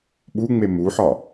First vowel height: high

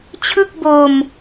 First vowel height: high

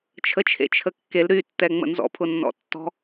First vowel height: mid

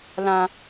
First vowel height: low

